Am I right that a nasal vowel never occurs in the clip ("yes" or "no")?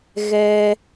yes